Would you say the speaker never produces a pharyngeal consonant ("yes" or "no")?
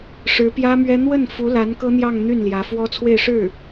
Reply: yes